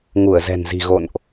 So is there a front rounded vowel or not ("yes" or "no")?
no